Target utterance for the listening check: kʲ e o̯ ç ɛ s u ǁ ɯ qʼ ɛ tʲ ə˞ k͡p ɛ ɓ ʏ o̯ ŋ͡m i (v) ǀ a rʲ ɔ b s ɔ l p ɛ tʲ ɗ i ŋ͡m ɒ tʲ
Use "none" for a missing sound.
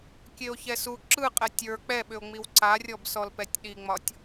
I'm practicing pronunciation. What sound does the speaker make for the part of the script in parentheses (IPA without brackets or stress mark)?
w